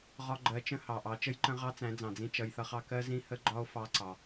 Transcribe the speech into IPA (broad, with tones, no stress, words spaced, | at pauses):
ʁɒ˧ɡ͡ǃɜ˨˦t͡ʃə̃˧ hɑ˨ʔɑ˨˦t͡ʃə˦jǃə̃˦ ʁɑ˦t͡sæ̃˨˦d͡zɑ̃˨d͡zĩ˧ t͡ʃʌ˧jθʌ˦χɑ˦ kɜ˦ zĩ˦hə˦ɡ͡ǃɒ˦o̯ fɑ˦ǀɑ˧